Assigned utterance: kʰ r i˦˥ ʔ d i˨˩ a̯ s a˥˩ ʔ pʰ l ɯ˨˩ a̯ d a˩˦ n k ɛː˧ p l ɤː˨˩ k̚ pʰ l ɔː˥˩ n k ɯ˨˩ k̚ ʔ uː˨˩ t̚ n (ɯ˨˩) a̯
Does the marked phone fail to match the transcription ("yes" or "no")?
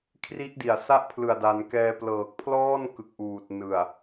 no